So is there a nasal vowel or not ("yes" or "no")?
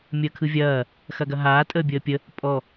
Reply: no